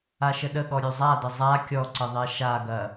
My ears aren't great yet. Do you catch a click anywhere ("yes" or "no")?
yes